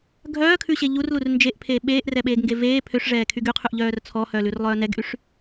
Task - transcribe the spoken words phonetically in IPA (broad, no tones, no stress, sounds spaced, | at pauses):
ɡʱ œː kʰ ʉ ɕ e ʎ u r l u r n d͡ʒ e ʔ pʰ eː ɓ eː ʔ r ɛ ɓ eː ɡ ŋ ɡ e v eː pʰ ø ʂ ʐ ɛː kʰ y ɡ y qʰ ʉ ʔ ʎ œː r t͡sʰ ɔ h œ l ʉ r lˠ œː n ɛ ɡ ʔ y ʂ